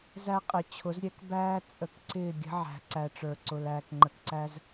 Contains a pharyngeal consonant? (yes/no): yes